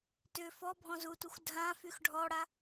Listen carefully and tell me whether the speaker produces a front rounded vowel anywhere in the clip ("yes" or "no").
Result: yes